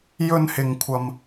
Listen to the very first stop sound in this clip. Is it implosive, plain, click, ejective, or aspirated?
aspirated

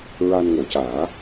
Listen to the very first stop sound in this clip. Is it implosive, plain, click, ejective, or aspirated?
plain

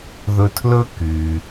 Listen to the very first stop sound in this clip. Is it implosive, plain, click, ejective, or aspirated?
aspirated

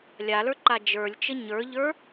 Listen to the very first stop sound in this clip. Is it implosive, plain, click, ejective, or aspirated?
click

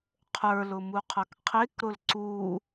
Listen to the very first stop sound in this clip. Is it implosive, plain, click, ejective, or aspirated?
aspirated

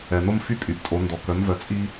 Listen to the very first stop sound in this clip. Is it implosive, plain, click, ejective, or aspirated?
ejective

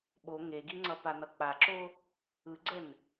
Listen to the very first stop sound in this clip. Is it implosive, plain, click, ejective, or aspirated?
implosive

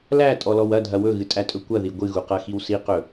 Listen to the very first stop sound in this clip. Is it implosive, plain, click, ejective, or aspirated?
ejective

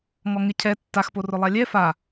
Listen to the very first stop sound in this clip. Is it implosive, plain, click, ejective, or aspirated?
aspirated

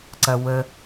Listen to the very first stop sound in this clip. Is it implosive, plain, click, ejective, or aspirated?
click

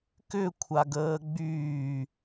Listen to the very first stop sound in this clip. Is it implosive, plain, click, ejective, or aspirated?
plain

